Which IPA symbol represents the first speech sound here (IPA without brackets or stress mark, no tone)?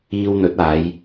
iː